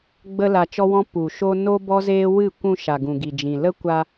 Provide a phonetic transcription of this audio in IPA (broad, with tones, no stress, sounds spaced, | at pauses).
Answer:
ɡ͡b ə˦ l a˧ t͡ʃ ɔ˦ w ɔ̃˦ p u˨ ʃ o˦ n o˦ b ɔ˦ z eː˦ w ɨ˦˨ kʷ ũ˧ ʃ a˨ ɡ ũ˨ ɡ i˨ d͡ʒ ĩ˨ l ə˦ kʷ a˧